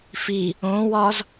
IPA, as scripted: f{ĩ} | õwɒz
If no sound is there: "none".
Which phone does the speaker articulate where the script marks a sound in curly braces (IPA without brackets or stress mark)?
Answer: i